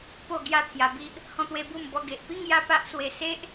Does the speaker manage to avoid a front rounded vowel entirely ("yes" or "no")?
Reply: yes